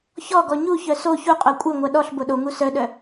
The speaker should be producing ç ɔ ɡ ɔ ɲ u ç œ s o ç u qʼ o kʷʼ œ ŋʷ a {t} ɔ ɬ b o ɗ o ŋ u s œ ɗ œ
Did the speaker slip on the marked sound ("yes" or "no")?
yes